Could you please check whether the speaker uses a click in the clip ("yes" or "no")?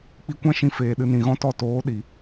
no